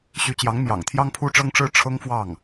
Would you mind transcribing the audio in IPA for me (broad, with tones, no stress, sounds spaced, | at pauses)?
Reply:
ɕ y˧˥ t͡ɕ j ɑ˧˥ ŋ m j ɑ̰˨˩ ŋ t̪ʰ j ɑ˥ ŋ pʰ u˥ ʈ͡ʂ ɤ˥ ŋ ʈ͡ʂ ɻ̩˥ ʈ͡ʂʰ ɤ˥ ŋ f w ɑ˥˩ ŋ